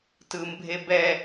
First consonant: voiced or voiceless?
voiceless